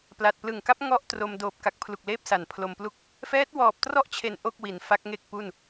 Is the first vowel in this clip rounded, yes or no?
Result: no